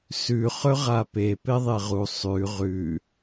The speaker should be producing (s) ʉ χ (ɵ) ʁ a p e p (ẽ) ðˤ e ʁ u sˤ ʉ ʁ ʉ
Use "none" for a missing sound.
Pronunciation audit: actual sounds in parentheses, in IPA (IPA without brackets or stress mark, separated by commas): s, ɵ, e